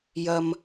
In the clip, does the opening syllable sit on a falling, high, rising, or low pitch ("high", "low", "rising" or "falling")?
high